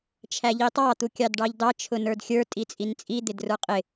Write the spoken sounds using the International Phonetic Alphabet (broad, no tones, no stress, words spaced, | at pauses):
t͡ʃʰæʎitˤɑ t̪ukʲɑdɖɑʎdɑ t͡ʃʰʊnə˞dxʲə˞ tʼit͡sʼint͡sʼi d̪ɪdrə˞qʼɪ